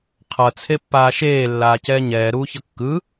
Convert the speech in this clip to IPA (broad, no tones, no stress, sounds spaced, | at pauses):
qʰ ʌ t͡sʰ e pː aː ʃ eː lː aː c ɛː ɲ ɛː ɾ uː ç ʌ kː ɯ